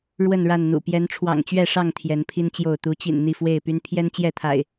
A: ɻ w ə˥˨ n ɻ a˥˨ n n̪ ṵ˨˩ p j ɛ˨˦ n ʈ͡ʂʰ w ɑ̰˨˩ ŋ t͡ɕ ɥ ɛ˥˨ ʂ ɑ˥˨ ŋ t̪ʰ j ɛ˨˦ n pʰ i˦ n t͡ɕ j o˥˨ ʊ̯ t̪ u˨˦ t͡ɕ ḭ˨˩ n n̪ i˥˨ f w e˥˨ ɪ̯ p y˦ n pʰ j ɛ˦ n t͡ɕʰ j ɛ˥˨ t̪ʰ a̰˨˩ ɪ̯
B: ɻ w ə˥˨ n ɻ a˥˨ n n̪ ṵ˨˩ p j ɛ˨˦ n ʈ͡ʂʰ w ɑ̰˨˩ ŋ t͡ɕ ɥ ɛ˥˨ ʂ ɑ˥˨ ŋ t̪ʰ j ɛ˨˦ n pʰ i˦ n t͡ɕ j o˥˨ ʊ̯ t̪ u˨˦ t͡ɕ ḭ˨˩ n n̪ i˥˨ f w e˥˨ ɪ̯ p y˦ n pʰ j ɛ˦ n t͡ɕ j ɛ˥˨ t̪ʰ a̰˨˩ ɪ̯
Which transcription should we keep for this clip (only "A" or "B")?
B